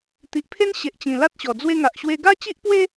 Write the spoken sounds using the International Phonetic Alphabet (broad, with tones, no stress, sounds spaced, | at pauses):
t̪ i˨ ʔ pʰ e˦ n ɕ e˨ ʔ t͡ɕ ĩ˨˩ l a˦ t̚ ɕ ɔ˨˩ d͡z w e˧ ŋ a˨ ʔ ɕ w e˧ ɡ a˦ t͡ɕ i˦ ʔ p w e˦